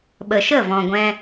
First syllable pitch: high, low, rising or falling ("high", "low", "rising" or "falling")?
low